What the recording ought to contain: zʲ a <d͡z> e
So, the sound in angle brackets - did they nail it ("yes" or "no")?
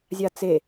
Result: no